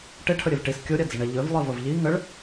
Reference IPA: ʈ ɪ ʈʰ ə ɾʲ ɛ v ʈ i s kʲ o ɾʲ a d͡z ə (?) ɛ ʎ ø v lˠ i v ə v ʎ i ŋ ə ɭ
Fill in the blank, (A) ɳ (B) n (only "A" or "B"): A